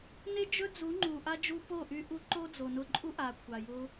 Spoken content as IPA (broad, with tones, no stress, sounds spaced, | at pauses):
n e˦ d͡ʒ ɵ˦ d͡z u˨˦ ŋ͡ǃ u˨ ʔ a˦ d͡ʒ u˧ p o˦˨ ʔ y˧ ʔ u˧ ǃ o˦ d͡z o˨ n ʊ˧ ǃʼ u˦ ʔ a˨ kʷʰ a˨ j ʊ˦